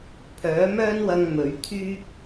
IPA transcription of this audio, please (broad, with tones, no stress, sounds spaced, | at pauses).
pʰ œː˨˥ m œː˥ n w ɐ˧ ŋ m ɵ˨˥ ɥ t̪ʰ yː˥ k̚